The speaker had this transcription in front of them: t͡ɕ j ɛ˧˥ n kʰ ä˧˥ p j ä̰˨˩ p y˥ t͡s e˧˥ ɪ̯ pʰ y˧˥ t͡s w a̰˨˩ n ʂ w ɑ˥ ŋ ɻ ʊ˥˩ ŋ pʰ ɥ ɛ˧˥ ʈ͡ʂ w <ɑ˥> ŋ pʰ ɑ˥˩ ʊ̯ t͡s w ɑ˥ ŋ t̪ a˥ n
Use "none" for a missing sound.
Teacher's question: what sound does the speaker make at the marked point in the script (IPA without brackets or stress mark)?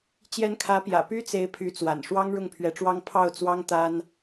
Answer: ɑ˥